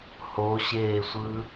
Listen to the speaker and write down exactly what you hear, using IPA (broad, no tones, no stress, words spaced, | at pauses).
hoɕeːsʷɯ